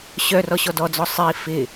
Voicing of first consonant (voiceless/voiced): voiceless